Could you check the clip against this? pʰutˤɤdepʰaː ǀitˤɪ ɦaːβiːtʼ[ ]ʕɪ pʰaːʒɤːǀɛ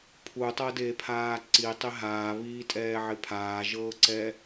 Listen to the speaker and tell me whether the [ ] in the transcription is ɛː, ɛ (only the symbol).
ɛː